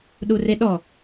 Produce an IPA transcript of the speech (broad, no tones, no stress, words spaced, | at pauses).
ɗureɗɔ